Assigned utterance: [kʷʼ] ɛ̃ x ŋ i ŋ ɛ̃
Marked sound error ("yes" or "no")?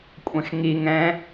no